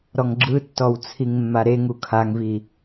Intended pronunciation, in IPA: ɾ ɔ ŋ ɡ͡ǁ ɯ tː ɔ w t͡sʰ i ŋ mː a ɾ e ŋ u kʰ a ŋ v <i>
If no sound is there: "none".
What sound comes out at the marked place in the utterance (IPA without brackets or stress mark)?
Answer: i